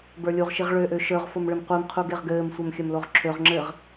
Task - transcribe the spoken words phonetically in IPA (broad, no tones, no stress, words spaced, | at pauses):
bə˞lʲuʁʃiʁ ɭøʔø ʃə˞ʁfom ɭɘmqʷimqʰu ɡeʁɡɘːmsʷɛm xʲɘmloʁǁʰøʁŋ͡ǁɘːʁ